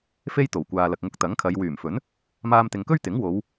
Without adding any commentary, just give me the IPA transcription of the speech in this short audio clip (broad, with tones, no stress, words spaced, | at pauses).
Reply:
fe˥jt̪o˨˩wkʷaː˨lɐ˨k̚ ŋʊ˧k̚t̪ɐ˨˥ŋkʰɐ˨˧j wyː˨˩mfɵ˨˥n | maː˧mt̪ɪ˨ŋkɵ˥ɥt̪ɪ˨˥ŋ wo˨˧w